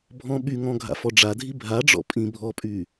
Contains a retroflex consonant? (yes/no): yes